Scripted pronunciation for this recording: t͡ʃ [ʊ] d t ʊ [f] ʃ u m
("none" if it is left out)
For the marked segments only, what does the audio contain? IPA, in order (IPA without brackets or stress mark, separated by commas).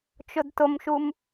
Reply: ʊ, m